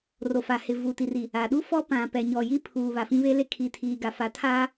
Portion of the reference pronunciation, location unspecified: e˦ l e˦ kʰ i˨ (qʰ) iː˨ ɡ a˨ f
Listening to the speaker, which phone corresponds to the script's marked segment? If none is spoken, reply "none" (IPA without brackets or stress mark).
tʰ